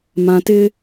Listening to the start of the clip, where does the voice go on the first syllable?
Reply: low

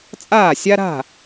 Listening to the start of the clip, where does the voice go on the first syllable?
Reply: falling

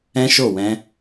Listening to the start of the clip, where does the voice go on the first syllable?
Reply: high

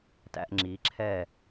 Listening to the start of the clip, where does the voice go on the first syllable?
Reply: high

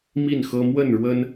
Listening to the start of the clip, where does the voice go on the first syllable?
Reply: falling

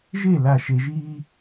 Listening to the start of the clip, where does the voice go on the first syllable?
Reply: falling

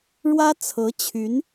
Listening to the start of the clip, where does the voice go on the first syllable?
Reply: high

